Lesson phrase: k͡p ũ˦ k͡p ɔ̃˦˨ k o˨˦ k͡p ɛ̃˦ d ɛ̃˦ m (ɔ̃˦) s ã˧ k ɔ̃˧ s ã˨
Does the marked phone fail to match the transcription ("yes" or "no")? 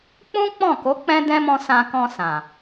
yes